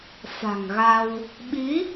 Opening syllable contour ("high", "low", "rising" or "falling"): low